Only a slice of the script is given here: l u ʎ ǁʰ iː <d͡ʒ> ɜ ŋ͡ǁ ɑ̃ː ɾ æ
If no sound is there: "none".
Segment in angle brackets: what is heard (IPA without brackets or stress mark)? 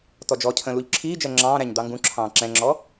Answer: d͡ʒ